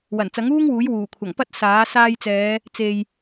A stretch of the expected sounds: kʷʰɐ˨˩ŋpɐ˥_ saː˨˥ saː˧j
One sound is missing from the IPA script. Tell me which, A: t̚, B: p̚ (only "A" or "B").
A